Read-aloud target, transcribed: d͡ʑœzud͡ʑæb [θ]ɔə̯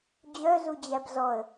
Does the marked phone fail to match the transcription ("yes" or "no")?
yes